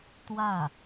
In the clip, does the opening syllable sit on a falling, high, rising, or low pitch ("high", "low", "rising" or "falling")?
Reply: falling